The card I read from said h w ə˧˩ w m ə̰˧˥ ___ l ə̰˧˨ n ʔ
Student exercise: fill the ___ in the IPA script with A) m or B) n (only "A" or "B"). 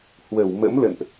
A